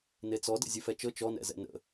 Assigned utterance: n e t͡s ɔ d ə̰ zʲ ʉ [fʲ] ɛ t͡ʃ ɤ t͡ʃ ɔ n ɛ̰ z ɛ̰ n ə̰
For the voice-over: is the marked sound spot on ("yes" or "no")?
no